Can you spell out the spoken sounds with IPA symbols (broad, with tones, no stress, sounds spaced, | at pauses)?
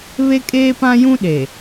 β e˦ kʼ eː˦ p ã˦ j ũ˦ ɗ e˨